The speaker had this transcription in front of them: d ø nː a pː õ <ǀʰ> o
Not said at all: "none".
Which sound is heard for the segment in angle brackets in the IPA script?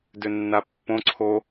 ǀʰ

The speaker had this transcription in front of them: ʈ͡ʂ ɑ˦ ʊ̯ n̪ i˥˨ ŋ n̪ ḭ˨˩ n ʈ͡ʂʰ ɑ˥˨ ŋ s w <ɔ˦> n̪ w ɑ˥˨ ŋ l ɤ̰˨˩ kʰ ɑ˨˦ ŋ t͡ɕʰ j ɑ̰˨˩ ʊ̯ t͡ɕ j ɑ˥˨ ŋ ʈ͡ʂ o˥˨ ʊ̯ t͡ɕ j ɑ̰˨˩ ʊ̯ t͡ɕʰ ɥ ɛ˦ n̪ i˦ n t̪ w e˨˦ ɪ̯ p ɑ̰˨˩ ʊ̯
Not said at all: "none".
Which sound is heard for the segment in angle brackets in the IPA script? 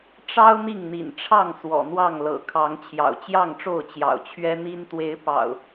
ɔ̰˨˩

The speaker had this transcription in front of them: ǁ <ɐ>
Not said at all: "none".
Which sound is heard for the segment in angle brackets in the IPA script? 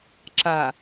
a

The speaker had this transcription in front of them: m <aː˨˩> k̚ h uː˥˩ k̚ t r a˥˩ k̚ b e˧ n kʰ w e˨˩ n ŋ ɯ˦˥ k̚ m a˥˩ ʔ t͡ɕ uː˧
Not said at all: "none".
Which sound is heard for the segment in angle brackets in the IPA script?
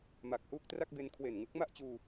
a˨˩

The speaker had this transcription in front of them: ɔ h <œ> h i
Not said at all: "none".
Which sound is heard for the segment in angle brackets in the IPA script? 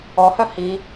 œ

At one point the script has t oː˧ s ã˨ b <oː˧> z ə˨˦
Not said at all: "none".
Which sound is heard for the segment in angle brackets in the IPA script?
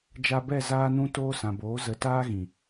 oː˨˦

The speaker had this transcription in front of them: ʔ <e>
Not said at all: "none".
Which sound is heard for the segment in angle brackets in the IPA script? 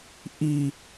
i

